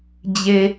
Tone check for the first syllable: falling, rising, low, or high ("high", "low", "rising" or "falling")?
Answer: high